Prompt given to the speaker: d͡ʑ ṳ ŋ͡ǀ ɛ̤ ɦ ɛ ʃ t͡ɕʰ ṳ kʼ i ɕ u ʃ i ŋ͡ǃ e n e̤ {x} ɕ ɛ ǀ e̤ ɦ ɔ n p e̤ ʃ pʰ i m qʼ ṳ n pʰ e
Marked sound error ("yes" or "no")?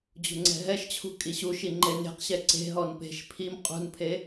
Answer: yes